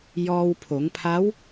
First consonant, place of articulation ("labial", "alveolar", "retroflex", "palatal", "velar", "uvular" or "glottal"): palatal